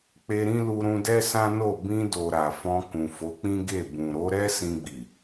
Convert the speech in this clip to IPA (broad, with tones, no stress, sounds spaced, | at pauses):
k͡p e˧ ɾ ĩ˦ l u˧ ɾ ũ˧ d ɛ˦ s ã˦ n o˦˨ b ĩ˧ d o˨ ɾ a˨ f ɔ̃˧ k ũ˨ f o˨˦ k͡p ĩ˦ ɡ e˦˨ b ũ˨ ɾ o˨˦ ɾ ɛ˦ s ĩ˧ ɡ͡b i˨